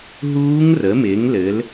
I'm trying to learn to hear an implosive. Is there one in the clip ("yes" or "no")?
no